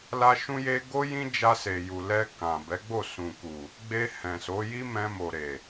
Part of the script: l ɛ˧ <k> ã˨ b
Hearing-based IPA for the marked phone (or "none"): k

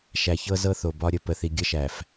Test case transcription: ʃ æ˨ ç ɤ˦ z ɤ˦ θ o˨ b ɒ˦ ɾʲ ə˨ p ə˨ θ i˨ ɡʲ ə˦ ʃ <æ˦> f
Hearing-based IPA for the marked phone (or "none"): æ˨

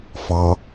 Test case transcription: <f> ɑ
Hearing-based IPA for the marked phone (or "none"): f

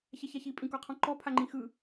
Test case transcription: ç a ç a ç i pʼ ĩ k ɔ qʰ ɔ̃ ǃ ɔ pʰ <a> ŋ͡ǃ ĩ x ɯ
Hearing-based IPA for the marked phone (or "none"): a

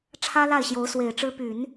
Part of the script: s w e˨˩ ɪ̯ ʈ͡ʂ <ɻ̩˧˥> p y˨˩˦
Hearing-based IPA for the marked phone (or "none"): ɻ̩˥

